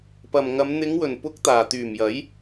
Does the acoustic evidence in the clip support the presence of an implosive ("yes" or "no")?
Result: no